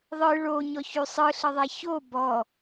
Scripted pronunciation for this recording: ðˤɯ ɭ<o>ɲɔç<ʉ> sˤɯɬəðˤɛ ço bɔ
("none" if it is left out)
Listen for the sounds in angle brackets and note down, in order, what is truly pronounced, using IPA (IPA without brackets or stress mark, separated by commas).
o, ʉ